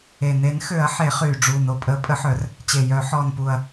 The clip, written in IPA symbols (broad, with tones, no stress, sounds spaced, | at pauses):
e˨˩ n e˨˩˦ n x ø˨˩˦ ɐ̯ ħ e˨˩˦ χ yː˨˩ ɖ͡ʐ uː˨˩ n o˨˩ pʼ əː˨˩˦ pʼ ə˨˩˦ ħ œ˨˩˦ r | t͡ɕ e˨˩ j œ˨˩˦ ħ ɔː˨˩ n p u˨˩ ɐ̯